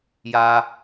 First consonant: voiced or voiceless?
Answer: voiced